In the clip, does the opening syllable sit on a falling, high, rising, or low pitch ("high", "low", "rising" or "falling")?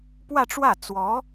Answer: falling